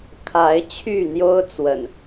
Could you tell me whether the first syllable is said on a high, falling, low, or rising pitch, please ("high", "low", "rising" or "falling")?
rising